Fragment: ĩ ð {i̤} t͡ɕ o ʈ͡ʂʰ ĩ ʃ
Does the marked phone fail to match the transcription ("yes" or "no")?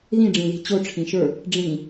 no